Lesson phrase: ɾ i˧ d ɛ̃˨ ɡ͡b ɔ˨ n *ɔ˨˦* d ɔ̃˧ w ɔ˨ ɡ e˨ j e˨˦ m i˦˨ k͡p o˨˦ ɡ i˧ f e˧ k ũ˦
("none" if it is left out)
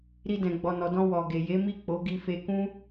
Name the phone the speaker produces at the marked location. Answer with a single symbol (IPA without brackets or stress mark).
ɔ˨